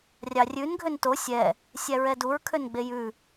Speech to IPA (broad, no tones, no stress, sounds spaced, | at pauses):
rʲ ɑ rʲ ʉ n ɡʱ ø n t o sʲ ɛ | sʲ æ ɹ ɛ d u ɹ kʰ ø n ɡ͡b e j ʉ